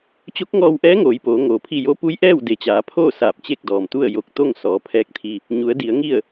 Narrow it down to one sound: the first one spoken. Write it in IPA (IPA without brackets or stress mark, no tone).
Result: t͡ɕ